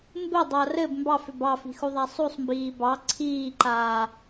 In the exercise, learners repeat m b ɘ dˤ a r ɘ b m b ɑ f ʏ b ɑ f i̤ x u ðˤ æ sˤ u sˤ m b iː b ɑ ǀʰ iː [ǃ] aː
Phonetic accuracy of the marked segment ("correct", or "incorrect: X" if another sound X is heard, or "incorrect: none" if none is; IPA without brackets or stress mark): correct